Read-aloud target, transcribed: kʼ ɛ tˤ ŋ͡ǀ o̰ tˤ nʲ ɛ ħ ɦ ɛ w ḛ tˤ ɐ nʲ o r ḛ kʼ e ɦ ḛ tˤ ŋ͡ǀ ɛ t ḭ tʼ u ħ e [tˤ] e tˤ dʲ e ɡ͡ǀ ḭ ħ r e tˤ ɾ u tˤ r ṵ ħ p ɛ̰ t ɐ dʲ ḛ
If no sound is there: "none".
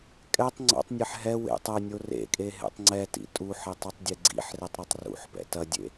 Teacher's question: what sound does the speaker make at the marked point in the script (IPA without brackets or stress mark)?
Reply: tˤ